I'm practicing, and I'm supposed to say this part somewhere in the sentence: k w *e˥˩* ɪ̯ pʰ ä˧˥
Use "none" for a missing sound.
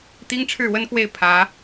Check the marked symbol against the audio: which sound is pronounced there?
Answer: e˥˩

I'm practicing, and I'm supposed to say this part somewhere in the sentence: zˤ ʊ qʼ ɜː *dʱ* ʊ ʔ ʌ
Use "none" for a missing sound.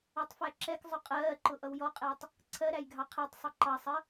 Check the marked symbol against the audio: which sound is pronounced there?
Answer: ǃ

